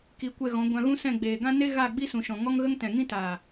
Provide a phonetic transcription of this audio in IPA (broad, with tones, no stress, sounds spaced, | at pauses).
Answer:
k i˨˦ kʷ ɛ˧ ɣ ɔ̃˨˦ ɡʷ ã˧ ɣ ũ˦ s ɛ̃˦˨ ɡ͡b eː˨ ɡ ã˦ n e˦ ɣ a˦˨ ɡ͡b i˦ s ũ˨ ʃ ɔ̃˨ ŋ ɔ˦ ŋ ɣ ə˦ ŋ t ɛ̃˨ ŋ ĩ˦ t aː˨